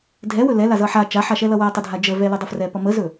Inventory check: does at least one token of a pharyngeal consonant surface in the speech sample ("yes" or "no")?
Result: yes